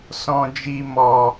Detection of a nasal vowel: present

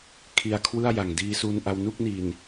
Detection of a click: absent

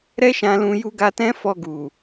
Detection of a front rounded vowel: absent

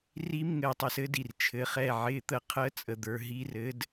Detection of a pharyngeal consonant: present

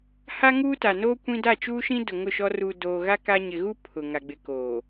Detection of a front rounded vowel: absent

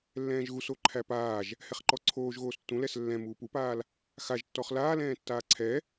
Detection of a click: present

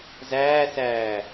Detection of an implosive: absent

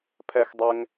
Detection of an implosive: absent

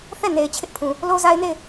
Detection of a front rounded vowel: absent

